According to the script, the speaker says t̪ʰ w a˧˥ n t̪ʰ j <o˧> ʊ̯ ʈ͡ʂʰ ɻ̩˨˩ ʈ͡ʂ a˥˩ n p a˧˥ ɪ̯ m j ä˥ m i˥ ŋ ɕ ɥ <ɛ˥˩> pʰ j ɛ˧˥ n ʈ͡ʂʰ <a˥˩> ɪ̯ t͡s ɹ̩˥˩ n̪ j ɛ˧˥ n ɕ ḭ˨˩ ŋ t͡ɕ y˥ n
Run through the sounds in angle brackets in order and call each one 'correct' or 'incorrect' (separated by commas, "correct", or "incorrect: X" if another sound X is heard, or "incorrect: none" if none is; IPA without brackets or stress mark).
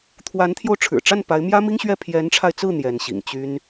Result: correct, correct, incorrect: a˧